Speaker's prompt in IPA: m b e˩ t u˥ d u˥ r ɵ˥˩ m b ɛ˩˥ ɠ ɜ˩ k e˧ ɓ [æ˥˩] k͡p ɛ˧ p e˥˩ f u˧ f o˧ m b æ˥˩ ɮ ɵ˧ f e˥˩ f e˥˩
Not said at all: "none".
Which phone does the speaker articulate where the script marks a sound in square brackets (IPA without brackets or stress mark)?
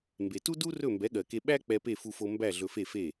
æ˥